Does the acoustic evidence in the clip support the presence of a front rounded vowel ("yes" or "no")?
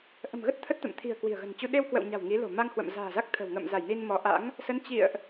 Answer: no